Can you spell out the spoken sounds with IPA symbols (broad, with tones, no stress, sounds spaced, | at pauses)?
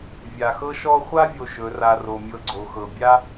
vʲ a˨ x ɤ˦ ʃ ɔ˦ χʷ a˦ vʲ o˨ ʃ ɵ˨˦ r a˧ r o˨ mʲ ɤ˧ ɡ͡ǀ o˨ x ɤ˨ bʲ a˦